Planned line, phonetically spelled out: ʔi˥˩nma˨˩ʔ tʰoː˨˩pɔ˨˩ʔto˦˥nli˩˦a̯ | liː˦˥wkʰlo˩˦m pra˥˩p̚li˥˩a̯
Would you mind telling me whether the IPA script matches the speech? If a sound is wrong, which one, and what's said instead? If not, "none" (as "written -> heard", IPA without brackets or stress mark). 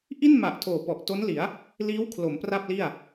none